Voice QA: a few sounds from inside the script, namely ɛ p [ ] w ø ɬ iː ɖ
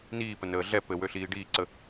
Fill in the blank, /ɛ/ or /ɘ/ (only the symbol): ɘ